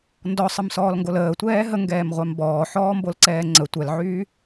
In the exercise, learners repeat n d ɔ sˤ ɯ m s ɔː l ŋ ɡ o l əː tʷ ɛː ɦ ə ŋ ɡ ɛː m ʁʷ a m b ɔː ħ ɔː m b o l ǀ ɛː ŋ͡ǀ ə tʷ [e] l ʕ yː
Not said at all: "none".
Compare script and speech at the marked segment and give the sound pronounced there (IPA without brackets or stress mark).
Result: ɛ